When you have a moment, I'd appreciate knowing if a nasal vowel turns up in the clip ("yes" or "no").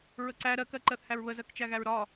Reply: no